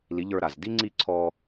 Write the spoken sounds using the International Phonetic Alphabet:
l i˨˦ ʎ ə˞˧ ɾ a˨ z d i˦ ŋ͡ǀ i˦˨ ǀʰ ɔ˧

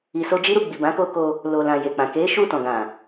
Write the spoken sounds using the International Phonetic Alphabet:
i˨ s o˧ d͡ʒ i˦ ɾ u˧ ɡ͡b i˨ b ã˨˦ k o˧ k o˧ | l o˨ l ã˨ j e˨ k͡p ã˨ k e˨˦ ʃ u˦˨ t ɔ̃˨ ɡ ã˨

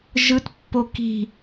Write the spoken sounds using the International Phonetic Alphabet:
ʒ ɯ t pː o k i̤

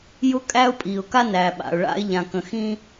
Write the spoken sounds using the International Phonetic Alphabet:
j ʊ˦ kʼ æ˦ ʊ̯ pʼ i˨ ʊ̯ k a˦ n æ˨ ɓ a̰˨ ʊ̯ ɭ a̰˦ ɪ̯ ʎ ã˨ k ə̃˨ x ĩ˦

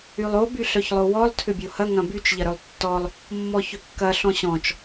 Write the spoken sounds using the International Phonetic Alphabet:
y lˠ o b y ɬ œ ç lˠ o w ɔ lˠ tʰ ʏ bʲ o h ɐ ŋ ɐ̃ b y t͡ʃ ʎ ɐ ɾ œ lˠ tː ɔ lˠ | mː ɔ ç ʏ kː ɐ ɬ ɔ̃ ɕ ɔ̃ t͡ʃ

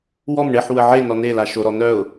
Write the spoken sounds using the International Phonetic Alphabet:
w ɔ m ɳ e ħ w ə ʕ e n ɔ n e l a ʃ o ɾ ɔ n œ ʊ̯

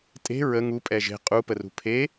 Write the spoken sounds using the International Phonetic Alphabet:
tʼ e̤ ɹ ə ŋ u pʼ ɛ ʒ e̤ qʼ u p ə r ṳ pʰ e

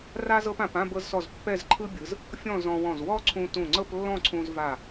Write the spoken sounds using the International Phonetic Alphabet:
r a˥ z ɤ˥ p ã˩˧ p ã˥˧ b ɤ˧ z s ɔ˧˩ z pː ɛ˥˧ z ǃʰ ɯ˥ bʲ ɯ˩˧ z | fʲ ɔ̃˥˧ z ɔ̃˧ w ɔ̃˧˩ z w ɔ˥ ǀʰ ũ˧ t ũ˧˩ ŋ͡ǀ ɤ˥˧ p lː ɔ̃˥˧ ǀʰ ũ˧ z v a˧˩

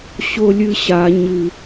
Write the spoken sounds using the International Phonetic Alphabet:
ɕ o lʲ ɨ ɕ a ɲ ɨ

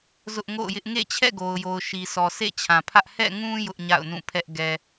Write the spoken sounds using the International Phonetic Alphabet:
z ʊ˦ ʔ ŋ o̰˦˨ ʊ̯ j ɪ˦ ʔ ŋ ḛ˦˨ t͡ɕʰ ɛ̰˦˨ ɡ o˨ ʊ̯ j o˨ ʊ̯ ʃ i˨ s ɔ˨ sʰ ḛ˦˨ t͡ɕʰ ã˨ pʰ ä˦ ʔ h ɛ̰˦˨ ŋ ũ˦ j ʊ˦ ʔ ɲ a̰˦˨ ʊ̯ n ũ˦˨ pʰ ɛ˦ ʔ ɡ ɛ˨

